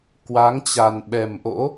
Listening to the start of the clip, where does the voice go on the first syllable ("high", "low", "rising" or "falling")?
rising